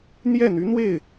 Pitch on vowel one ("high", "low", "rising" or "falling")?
falling